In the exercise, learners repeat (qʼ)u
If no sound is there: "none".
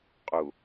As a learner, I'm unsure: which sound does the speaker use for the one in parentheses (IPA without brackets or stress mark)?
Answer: qʼ